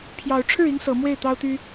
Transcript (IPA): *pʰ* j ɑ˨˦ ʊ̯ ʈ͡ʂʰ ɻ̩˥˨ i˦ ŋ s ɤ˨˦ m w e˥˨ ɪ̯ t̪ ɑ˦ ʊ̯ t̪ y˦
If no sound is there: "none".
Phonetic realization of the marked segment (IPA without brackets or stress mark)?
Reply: pʰ